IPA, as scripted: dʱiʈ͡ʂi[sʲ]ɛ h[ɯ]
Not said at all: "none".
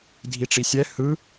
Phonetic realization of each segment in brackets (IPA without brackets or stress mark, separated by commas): sʲ, ɯ